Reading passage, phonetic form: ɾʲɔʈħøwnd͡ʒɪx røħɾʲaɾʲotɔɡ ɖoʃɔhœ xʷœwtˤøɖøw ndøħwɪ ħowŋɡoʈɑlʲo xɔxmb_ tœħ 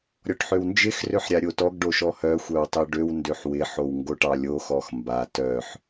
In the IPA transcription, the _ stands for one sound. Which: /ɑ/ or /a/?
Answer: a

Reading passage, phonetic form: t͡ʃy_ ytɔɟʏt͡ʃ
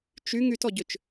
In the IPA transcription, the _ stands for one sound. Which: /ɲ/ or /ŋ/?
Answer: ŋ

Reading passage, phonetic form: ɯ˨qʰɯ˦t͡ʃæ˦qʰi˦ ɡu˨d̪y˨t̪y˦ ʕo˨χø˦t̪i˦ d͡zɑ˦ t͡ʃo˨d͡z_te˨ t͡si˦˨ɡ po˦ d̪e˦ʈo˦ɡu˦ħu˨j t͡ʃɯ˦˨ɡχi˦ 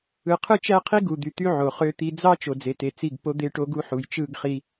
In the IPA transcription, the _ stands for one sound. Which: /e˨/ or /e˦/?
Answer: e˨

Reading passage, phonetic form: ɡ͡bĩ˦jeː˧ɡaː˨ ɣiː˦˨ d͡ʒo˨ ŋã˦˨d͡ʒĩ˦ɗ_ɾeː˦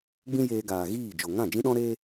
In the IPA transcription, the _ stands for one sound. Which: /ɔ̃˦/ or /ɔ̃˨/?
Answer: ɔ̃˦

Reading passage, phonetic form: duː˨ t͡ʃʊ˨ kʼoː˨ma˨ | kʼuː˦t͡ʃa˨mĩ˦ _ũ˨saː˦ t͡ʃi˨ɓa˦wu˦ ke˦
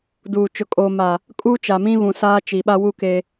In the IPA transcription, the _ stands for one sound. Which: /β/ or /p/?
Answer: β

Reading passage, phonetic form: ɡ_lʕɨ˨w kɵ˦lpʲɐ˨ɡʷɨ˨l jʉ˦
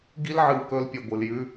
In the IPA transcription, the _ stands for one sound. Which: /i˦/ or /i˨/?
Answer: i˦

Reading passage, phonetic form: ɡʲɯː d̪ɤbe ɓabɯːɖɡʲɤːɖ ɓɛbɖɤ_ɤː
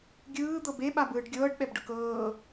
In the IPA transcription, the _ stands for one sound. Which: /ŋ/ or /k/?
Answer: k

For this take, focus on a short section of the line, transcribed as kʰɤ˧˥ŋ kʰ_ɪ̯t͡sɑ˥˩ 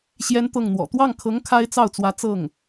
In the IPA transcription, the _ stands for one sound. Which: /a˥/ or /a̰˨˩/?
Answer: a˥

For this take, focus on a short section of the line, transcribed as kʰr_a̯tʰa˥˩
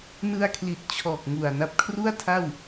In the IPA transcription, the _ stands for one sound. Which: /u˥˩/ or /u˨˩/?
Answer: u˥˩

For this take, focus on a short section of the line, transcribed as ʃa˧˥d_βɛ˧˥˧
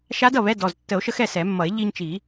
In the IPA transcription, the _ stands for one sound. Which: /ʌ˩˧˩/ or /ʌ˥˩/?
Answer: ʌ˥˩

